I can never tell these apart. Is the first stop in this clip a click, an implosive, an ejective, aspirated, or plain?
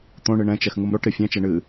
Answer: plain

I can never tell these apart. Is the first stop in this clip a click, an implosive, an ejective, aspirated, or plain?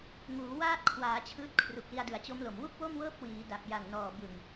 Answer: plain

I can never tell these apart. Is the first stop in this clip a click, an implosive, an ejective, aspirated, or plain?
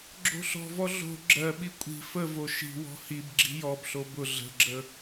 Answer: click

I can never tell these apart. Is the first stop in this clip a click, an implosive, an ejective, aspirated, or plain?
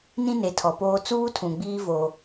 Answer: aspirated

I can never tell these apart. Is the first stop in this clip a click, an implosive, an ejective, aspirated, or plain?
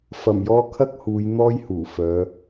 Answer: aspirated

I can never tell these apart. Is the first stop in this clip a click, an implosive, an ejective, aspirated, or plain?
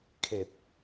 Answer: aspirated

